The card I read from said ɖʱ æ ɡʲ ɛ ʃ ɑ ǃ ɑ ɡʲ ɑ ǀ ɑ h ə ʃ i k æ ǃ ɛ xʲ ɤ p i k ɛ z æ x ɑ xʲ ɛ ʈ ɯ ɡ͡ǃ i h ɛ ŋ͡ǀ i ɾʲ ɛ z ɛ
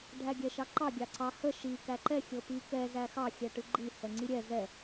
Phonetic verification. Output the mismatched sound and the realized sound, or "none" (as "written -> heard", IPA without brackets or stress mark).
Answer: none